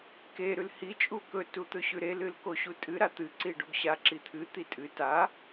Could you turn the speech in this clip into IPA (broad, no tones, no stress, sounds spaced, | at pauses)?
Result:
k e ɾ ʉ l h i t͡ʃʼ u k ɵ t u t̪ ɵ ɕ ʉ ɾ e l ɨ l k o ɕ u tʼ ɨ ɾ a t̪ ɨ ǀ i ɖ o ɡ ɕ a ǁ i t̪ʰ ɨ t̪ i tʼ ɨ t a